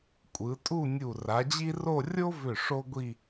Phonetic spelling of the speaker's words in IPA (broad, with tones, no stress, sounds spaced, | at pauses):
kʷʼ ɯ˩˧ tʼ u˥˧ nʲ u˧˩ r a˩˧ d͡ʑ i˥ r o˥˧ rʲ o˥ v ʏ˧˩ ʂ o˥ ɡʷ i˥˧